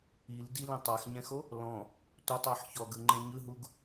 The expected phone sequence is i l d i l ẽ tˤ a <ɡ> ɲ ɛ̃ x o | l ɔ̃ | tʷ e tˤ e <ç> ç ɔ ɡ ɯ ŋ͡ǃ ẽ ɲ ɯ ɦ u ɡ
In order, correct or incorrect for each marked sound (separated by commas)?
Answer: incorrect, incorrect